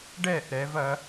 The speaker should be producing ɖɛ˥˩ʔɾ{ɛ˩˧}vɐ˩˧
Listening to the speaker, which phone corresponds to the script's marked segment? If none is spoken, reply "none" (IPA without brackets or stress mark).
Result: ɛ˩˧